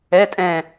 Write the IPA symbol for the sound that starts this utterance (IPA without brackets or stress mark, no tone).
ɛ